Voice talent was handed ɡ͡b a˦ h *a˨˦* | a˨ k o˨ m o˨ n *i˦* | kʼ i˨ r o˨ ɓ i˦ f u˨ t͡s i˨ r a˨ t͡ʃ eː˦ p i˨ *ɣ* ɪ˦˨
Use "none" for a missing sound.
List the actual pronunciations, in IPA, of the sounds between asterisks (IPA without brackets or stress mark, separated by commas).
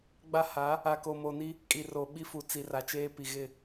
a˨˦, i˦, ɣ